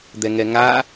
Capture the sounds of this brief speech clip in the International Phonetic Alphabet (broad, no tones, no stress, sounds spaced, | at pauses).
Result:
d̪ ɛ ŋ ɛ ŋ a